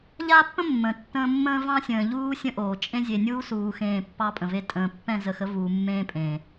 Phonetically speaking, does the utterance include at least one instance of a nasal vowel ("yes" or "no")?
yes